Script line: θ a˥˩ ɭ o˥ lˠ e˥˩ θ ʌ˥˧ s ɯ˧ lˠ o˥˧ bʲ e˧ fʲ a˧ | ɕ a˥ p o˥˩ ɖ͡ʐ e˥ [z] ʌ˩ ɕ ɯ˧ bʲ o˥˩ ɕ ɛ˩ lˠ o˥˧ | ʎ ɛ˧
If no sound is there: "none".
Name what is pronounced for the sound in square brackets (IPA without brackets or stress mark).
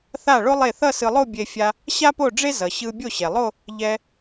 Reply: z